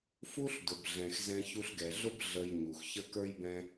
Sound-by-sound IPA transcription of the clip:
fu˦ɬ dʊ˨bɮɛ̃˨x zɛ̃˧çu˧ɬɡɛ˨ɮʊ˦b ɮə˧jɲu˨xçə˦ kə˞˦jbɛ̃˦

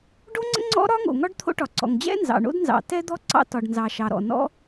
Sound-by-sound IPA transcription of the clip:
ɖo˥ŋ͡ǀə̰˥ ŋ͡ǀɔ̰˥ɾɒ˥ ŋo̰˩ŋɒ˥ɖ t̪ʰo̰˥ʈɒ˩ ǀɔ̰˩ŋd͡ʑɛ̰˥ nzɑ̰˩ɳo̰˥d nzɑ̰˩ tɛ˥d̪ɔ˥ ǀɑ̰˥ tɒ˩ɖnzɑ˩ ʃɑ˩ɾɔ̰˩ nɔ̰˥

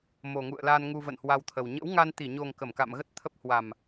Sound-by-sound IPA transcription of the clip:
mo˨˩ŋṵ˧˨ə̯la˧n ŋu˧və̰˧˨nhwa˧wt̪ʰə˨˩w ɲə̰˧˥w ŋa˧nt̪i˧˩ɲo˨˩ŋ kə˧˩mka̰˧˨mɣə˦˥t̚t̪ʰə˦˥p̚ hwa˨˩m

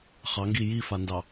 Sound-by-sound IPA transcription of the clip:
χɑŋɡi jifandɑ

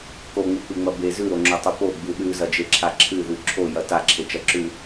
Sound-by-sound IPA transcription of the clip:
koŋ͡mɨk͡pɨŋ͡mɐ be zʉɾoŋ͡ǁotˤu poɡ͡bʉ ɗʉzɐd͡ʒeǁʰa ǁʰɨðʉ ǁʰojɐ taǁʰet͡ʃɐǁʉ

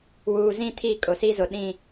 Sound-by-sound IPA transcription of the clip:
wuː˨zĩ˦tʰi˦˨ kʼʊ˨si˦zʊ˨ ɗĩ˦˨

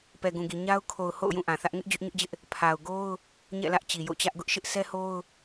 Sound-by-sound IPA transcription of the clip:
pɛ˨ɡũ˨ɡi˨ ɲa˦ʊ̯ kʰo˨ʊ̯ ho̰˦˨ʊ̯jũ˦˨ ʔã˨θä˦ʔ ŋɪ˦ʔ d͡ʑʊ˦ʔɲʊ˦ʔd͡ʑɪ˦ʔ | pʰa˨ʊ̯ɡo˦ʊ̯ | ɲɛ̰˦˨lä˦ʔ t͡ɕi˨jo̰˦˨t͡ɕä˦ʔ ɡʊ˦ʔʃɪ˦ʔ sʰɛ˦ho˦ʊ̯

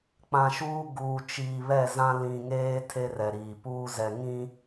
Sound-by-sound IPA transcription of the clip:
k͡pã˨ʃuː˦ ɡuː˨t͡ʃiː˨ βɛ˦˨zã˦ lĩ˨ŋeː˦ tʰe˦rɛ˨ɾiː˨ puː˦zɛ˨ ŋĩ˦

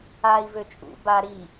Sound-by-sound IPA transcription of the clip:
ai̯vø t͡ʃʼṵ ba ɾi

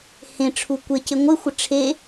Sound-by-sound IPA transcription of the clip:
hẽʈ͡ʂʰu kʷecɪ ŋʷɪxʷɪ ʈ͡ʂʰe

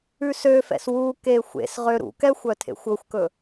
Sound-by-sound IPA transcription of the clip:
ʉsøfɛ̰s wuke xʷḛs ʁøɾṵkɛxʷ œtʰḛxʷɵxʷkɵ

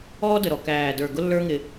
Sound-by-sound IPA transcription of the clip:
ɔː˦də˨ ɾɔ˨ kæː˨də˞˨ ɡʊ˦lːə˞˦ ŋɪː˦

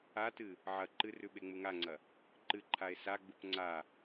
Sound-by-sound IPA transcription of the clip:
atɨ | ʕɐ ǃɨrʉ ɓeŋ͡muŋaŋ͡ǀɐ | ǃɨǃʰae̯ saɡ͡bup ŋ͡ǀa

